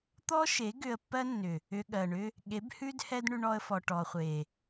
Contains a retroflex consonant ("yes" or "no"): yes